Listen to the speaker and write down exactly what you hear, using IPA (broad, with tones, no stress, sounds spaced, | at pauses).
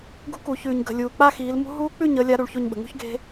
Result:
ɡ ṳ˦˥ k u˨˩˦ ç ʉː˨ ɲ ɡ ə̤˨ lʲ uː˨ k͡p a˥˧ x iː˨˦ l m ṳ˦˥ ɦ uː˦˥ k͡p ʉ˥˧ ɲ əː˨˦ lʲ a˨˦ ɾ u˨˦ ɭ ç o˥˧ ɲ ɓ ə̤˨ ŋ ṳ˥˧ ç ɡ e̤˦˥